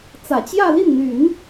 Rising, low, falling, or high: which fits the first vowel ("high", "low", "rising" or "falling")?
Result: low